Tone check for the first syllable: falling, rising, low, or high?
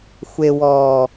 low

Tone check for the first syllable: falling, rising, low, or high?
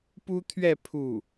high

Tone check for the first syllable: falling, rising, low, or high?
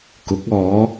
rising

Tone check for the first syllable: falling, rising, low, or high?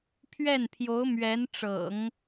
falling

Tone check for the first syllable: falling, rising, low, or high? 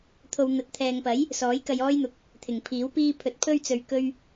low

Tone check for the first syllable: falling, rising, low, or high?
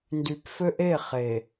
low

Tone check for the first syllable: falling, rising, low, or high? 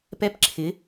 rising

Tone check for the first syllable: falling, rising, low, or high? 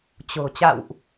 low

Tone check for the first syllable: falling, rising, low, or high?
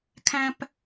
high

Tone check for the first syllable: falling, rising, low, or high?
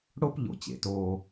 high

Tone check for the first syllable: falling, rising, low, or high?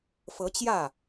rising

